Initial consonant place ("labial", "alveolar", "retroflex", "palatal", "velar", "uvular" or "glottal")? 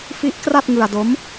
labial